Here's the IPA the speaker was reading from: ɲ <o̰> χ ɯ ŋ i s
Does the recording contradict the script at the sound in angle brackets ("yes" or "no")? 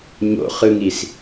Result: no